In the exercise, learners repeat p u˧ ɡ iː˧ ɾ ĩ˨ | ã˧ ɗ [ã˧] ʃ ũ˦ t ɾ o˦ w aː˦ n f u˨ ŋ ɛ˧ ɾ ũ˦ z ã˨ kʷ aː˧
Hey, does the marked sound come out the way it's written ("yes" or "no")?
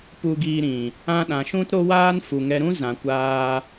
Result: no